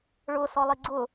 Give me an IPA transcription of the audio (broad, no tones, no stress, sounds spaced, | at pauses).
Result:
ɭ ʊ s ɔ lˠ i ɡ͡ǀ ʊ